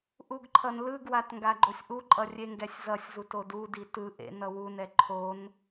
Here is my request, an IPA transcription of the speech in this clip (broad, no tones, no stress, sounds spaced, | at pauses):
ʔ u ɡ ǃʰ ʌ n l ɯ ɡ w a t ŋ ɡ a ɡ͡ǃ o sʲ ʔ u ǃʼ ʌ rʲ e ŋ ɡ ɛ sʲ z ʌ sʲ z u t o d u d i t ɯ ʔ ḛ n ʌ w u n ɛ ǃʰ o n